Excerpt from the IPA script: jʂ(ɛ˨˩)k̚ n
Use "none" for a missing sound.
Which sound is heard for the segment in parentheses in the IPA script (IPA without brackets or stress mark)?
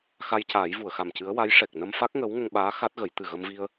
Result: ɛ˨˩